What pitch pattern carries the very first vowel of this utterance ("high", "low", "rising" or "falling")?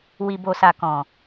low